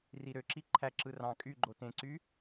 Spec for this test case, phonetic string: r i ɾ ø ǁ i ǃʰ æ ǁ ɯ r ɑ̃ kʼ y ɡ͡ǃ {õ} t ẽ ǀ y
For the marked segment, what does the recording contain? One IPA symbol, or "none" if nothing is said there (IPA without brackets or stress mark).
o